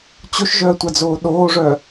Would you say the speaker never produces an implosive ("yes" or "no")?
no